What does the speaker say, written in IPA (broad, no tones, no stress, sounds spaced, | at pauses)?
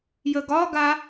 j ə ɡ ɒ ɡ a